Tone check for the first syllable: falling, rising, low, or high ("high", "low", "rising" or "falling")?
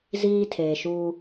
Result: high